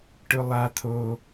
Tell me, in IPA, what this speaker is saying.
ʈ ʊ lˠ a t̪ʰ o

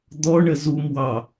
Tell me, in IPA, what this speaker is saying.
d̪ ɔ ɳ ə z u m w ɑ

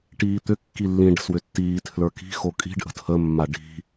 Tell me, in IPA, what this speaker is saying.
ʈ iː t̪ ʏ kː i lː ĩ ɖ ə̤ s w ʏ tː iː tʰ l ə˞ k i̤ x o kʼ i̤ ɖ ʔ ə̤ tʰ ə mː a ɖ i̤

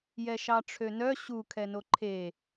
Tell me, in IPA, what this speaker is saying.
j ɛ ʃ ɑ ʈ͡ʂʰ ø n œ ɕ u kʰ ɛ n o ǃʰ e

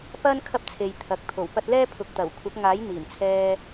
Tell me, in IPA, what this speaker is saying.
p ɐ˥ n kʰ ɐ˥ p̚ t͡sʰ e˨ j t̪ʰ ɐ˨ k̚ t̪ʰ o˨˩ w p ɐ˧ t̚ l ɛː˥ pʰ ʊ˨ k̚ t̪ ɐ˨˩ w kʷʰ ɐ˨˥ k̚ ŋ aː˨˥ j n̪ iː˨˩ n t͡sʰ ɛː˧

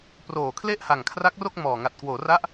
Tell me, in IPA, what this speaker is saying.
p r oː˨˩ kʰ l e˥˩ ʔ h a˨˩ ŋ kʰ r a˦˥ k̚ r o˥˩ k̚ m ɔː˨˩ ŋ a˨˩ t̚ k w oː˩˦ r a˦˥ ʔ

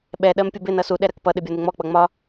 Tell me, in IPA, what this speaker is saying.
ɓ ɛ ɗ ɜ m pʲ ʊ b ɪ n ʌ s u ɗ ɛ ɾ ɜ k p ʌ ɗ ɪ bʲ ɒ n ɪ ŋ͡m ɔ k͡p ʌ ŋ͡m ɒ

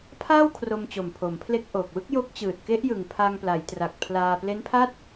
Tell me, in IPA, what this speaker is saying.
pʰ aː˥˩ w kʰ r o˧ m t͡ɕ o˨˩ m pʰ o˩˦ m pʰ l e˦˥ k̚ ʔ o˨˩ k̚ w ɯ˥˩ k̚ j o˦˥ k̚ t͡ɕ ɯː˨˩ t̚ k e˦˥ ʔ j ɯ˨˩ ŋ pʰ a˧ ŋ p l a˩˦ j t r a˨˩ k̚ pʰ l aː˧ p l e˦˥ n pʰ a˥˩ t̚

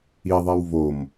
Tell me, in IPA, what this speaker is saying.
i ðˤ ɛ w v o m

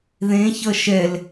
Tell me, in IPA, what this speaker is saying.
ð ẽ ç ʌ ʃ ɛ l

